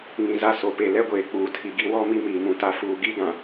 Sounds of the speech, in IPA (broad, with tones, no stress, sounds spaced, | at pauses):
ŋ ĩ˨ z a˦ s o˨ p e˨ l ɛ˦ ɡʷ eː˨ k͡p uː˨ tʰ i˨ ɡ i˦ w ɔ˦ m i˦ m iː˨ m ũ˨ t a˦ f uː˨ ɡ i˦ ɡ ã˨